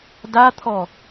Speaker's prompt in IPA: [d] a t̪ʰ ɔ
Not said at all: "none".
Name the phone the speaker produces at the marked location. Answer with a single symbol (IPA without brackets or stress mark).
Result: d